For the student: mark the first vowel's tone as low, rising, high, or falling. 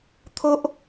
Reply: high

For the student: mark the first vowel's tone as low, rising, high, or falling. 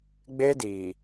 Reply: high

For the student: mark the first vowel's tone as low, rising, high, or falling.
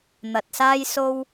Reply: low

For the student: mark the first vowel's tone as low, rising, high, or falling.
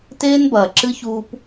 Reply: high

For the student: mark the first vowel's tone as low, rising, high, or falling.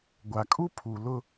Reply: low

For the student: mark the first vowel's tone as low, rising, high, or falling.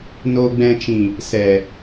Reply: low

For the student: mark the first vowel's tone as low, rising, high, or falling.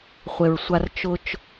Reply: low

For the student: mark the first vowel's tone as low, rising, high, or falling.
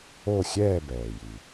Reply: falling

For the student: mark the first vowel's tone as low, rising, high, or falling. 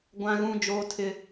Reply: high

